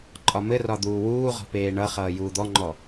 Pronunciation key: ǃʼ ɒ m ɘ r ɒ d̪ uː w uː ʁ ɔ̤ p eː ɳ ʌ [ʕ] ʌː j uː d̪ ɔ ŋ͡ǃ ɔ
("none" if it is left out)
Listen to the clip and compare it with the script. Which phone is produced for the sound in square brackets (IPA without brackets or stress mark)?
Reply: χ